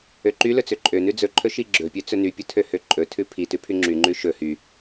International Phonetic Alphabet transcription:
ø ǃ y l ɵ t͡s ø ǃʼ ø n ʉ d͡z ɵ ǃʰ ɵ ʃ i ɡ͡ǁ ɵ pʲ ø t͡s ɵ n y pʲ ɵ tʰ ø h ø ǃʼ ɵ tʰ ʉ pʰ i t ʉ pʰ y ŋ͡ǁ y ŋ͡ǃ ʉ ʃ ɵ h y

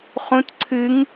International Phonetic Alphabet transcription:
χ ũ t ǀʰ ɨ ŋ

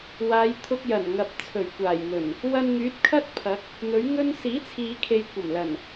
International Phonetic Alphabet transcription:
w aː˨˧ j t̪ʰ ʊ˧ k̚ j ɐ˨˩ n ŋ ɐ˨ p̚ t͡sʰ ɵ˨˩ ɥ kʷ aː˨˩ j n̪ ɵ˨˩ n | w ɐ˧ n ŋ yː˨˥ t̚ kʰ ɐ˥ t̚ pʰ ɐ˨˥ k̚ | n̪ ɵ˨˥ ɥ ŋ ɵ˥ n s iː˨˥ t͡sʰ iː˨ kʰ e˨ j kʷ ɐ˨˩ m l ɐ˨˩ n

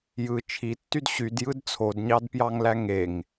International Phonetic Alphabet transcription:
j ɯ t͡ʃʰ i tː y d ɕ y d j ɯ d t͡sʰ o d ɲ ɑ d p j ɑ ŋ l æ ŋ e ŋ

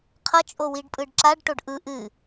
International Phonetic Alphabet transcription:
qʰ ʌ t͡ʃʼ o w i ɖ pʼ ɯ ɖ ǁ a ɖ ʈ o ɖ ʔ ɯ ʔ ɨ

